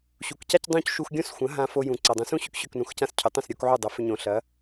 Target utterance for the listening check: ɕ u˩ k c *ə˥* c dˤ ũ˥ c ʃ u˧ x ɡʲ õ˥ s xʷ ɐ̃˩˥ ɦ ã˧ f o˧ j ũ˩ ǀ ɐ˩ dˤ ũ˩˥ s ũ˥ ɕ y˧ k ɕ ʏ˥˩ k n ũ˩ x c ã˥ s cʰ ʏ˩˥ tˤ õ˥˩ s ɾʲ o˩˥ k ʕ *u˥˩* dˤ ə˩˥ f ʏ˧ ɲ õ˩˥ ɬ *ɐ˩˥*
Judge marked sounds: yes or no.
no, yes, yes

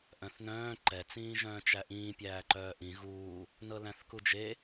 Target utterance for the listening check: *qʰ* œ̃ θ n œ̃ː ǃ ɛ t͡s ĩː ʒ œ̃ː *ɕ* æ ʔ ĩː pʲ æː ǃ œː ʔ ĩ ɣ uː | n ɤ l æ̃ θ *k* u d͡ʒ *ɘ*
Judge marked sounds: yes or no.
no, no, yes, no

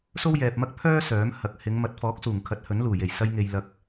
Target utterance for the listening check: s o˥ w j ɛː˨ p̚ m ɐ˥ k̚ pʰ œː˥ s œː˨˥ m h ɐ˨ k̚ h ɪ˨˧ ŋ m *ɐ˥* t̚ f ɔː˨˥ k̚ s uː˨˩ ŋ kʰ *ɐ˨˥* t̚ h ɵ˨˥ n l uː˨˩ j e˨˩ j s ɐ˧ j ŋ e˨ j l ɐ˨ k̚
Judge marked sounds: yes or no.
no, yes

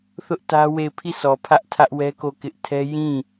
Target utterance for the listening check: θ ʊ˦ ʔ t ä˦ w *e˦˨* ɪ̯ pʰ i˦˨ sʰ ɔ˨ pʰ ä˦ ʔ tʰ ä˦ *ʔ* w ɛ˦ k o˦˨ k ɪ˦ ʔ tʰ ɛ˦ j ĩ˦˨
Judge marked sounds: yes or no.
yes, yes

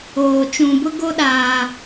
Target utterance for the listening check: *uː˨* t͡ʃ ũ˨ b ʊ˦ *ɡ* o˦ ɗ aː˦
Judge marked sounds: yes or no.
no, yes

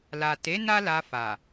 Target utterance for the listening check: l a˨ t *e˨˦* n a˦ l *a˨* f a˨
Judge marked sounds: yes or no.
yes, no

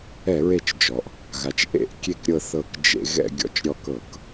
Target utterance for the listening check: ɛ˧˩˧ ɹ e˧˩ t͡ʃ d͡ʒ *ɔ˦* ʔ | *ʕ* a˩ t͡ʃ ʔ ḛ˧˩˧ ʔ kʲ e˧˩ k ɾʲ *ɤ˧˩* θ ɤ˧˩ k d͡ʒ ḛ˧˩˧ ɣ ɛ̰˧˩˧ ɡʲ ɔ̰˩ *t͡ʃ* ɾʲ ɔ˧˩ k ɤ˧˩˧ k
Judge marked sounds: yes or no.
no, no, yes, yes

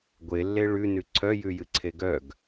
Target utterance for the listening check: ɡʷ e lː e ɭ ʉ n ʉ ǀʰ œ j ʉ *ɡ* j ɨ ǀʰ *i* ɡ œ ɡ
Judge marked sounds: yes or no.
no, no

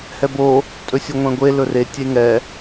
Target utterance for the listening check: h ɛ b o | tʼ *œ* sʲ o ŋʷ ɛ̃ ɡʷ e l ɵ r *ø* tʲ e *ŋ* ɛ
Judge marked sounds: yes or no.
no, no, yes

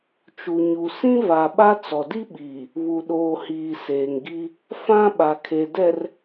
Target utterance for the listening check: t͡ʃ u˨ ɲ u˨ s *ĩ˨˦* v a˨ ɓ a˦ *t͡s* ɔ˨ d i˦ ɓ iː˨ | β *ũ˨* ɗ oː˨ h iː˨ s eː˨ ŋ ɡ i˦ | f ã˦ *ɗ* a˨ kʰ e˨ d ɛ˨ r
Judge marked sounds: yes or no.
no, yes, no, no

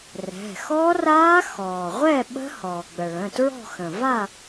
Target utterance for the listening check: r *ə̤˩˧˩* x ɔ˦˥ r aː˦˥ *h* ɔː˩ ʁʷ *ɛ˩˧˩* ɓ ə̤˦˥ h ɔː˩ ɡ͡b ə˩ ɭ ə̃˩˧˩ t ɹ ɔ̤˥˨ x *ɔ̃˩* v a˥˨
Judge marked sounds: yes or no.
no, no, no, no

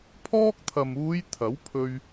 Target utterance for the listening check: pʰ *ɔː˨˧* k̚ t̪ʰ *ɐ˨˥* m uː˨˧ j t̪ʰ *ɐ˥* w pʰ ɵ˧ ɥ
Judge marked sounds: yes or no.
no, no, no

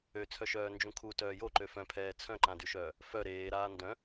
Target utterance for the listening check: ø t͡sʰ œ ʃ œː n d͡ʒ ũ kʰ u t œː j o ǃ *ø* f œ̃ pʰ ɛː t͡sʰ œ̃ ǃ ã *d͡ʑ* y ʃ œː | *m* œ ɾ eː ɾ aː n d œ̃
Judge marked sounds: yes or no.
yes, no, no

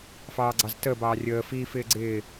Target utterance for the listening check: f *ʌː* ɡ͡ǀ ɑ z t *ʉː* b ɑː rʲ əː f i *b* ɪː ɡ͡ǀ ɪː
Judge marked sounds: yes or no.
no, no, no

